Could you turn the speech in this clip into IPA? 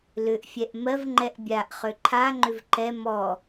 l ʏ ʔ fʲ ɛ ʔ m ɜ v ŋ͡ǃ ɛ ʔ bʲ a ʔ χ ø ǃʰ a ŋ͡ǃ ʏ v ǃ ɛ m ɔ

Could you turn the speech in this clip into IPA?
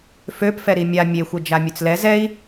f ø p f ɛ ɾ i mʲ a mʲ e xʷ ə d͡ʒ a mʲ ø t͡s l ɛ z ɛ i̯

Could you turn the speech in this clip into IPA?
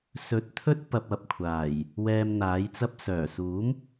s ɵ˨ t̚ t̪ʰ ɵ˥ t̚ p ɐ˧ p̚ ɐ˧ p̚ kʷʰ aː˨˩ j | w ɛː˧ m n̪ aː˨˥ j t͡s ɐ˧ p̚ s œː˨˩ s uː˨˥ m

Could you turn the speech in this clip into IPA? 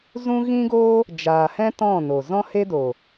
z ũ˦ ɣ ĩ˦ ɡ oː˦ | d͡ʒ aː˨ h ɛ̃˦ t ɔ̃˦˨ n o˨ z ɔ̃˦ h e˦ d o˨

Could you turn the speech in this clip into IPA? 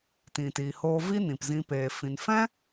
t ĩ˨ t i˨ h oː˧ v i˦ n ĩ˨ p z ĩ˧ p eː˨ f ĩ˨ n f ɛ̃˦

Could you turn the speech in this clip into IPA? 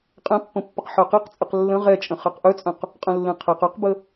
qʼ ɛ̃ pː ə̃ pː ə q ħ œ q e q t͡sʼ ə q lː ə̃ ʁ ɛ t͡ʃʼ ə̃ χ ɛ q ʔ œ t͡sʼ œ̃ q | qʼ ə̃ lː ẽ qʰ ɛ q œ q b ə

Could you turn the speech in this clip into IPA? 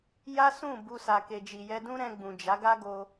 j a˦ s ũ˦˨ b u˧ s a˨ k e˨ d͡ʒ i˨ j ɛ˧ d ũ˦ ɾ ɛ̃˧ ɡ͡b ũ˨ d͡ʒ a˨˦ ɡ a˦ ɡ o˧

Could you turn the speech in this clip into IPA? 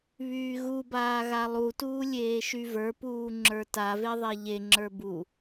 β yː ɣ u b aː ɣ a lˠ u t uː lʲ eː ʃ y v ə˞ p uː ŋ͡ǁ ə˞ t a v e ðˤ e ʎ e ŋ͡ǁ ə˞ b u

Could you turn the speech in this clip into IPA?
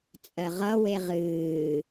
t͡sʼ ɜ ʁ ʌ w e ʁ ɨː

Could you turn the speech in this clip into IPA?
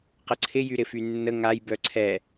q ə ǀʰ ɪ j y ɾ ɪ f y nː ə ŋ a j b œ ǀʰ ɛ

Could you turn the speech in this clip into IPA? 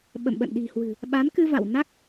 ɓ ə̰˧˨ m ɓ ə̰˧˨ n ɗ i̤˨˩ h w ɨ̤˨˩ | ɓ a˨˦ n k ɨ˧ v a̰˧˨ w n a˦˥ k̚

